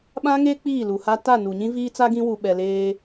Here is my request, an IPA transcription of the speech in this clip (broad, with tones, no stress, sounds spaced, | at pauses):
ɓ ã˦ ŋ e˦ k͡p iː˦˨ l u˨ h a˦ t a˦˨ n u˨ ɲ ĩ˦ v iː˦ t͡s a˦ ɡ ĩ˦ w u˨ ɓ ɛ˨ l eː˦